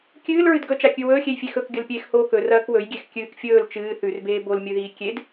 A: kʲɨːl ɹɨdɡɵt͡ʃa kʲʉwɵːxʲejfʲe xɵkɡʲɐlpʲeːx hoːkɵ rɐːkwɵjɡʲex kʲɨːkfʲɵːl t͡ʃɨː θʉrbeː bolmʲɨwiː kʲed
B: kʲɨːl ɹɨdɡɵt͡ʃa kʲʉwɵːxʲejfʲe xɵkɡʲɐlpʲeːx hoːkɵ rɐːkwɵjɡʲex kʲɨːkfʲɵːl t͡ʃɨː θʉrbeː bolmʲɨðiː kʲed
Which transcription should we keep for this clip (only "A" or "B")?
B